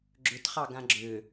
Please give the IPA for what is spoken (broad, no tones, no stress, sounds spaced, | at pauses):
ɡ͡ǁ ʏ t χ ɑ ɡ ã ɡ͡ǁ ʏ